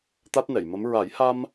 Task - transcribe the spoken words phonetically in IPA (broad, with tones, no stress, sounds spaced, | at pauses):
t̪ a˦˥ t̚ n ɛ˨˩˨ j m ə˧˥ m ɹ a˨˩˦ j h a˧ m